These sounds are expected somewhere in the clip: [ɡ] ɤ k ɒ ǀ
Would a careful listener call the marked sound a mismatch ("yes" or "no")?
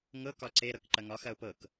yes